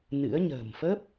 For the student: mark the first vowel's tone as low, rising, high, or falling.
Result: rising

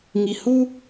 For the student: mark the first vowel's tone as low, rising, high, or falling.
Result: low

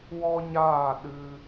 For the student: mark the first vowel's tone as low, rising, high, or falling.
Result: high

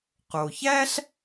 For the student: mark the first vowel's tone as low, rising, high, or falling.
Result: low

